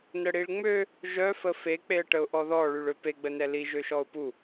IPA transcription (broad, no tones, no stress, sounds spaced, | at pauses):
n ə ɽ i ɭ ŋ͡m ø | ʒ œ f ə f e k͡p e ə̯ ʈ ə ʊ̯ ʔ ɔ ð ɔ ɭ y ɭ ø p e ɡ͡b ə n ɛ l i ʒ ø ʃ ɔ ʊ̯ p u